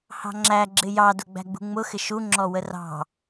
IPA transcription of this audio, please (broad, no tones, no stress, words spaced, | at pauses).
hɑ̤ŋ͡ǁæ ɡ͡ǁɪjɑdʊ ɡ͡bæ̤ɡ͡bṳŋ͡mʊxɪ ʃu ŋ͡ǁɔwərɑ̤